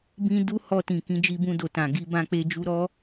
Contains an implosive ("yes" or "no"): no